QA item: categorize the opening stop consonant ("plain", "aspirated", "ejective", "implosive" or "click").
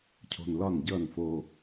aspirated